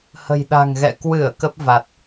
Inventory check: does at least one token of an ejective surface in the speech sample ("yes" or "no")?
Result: no